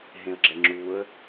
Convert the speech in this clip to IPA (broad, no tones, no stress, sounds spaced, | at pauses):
ɦ ẽ ə̯ ɡ͡ǁ ɛ ŋ͡ǁ u ə̯